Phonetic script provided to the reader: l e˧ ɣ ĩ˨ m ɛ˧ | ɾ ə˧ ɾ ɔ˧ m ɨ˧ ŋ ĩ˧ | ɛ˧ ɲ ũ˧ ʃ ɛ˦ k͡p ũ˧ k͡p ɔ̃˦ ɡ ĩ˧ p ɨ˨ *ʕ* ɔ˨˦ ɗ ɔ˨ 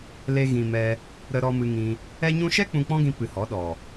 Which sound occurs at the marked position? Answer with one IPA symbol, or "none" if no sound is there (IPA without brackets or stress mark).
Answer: h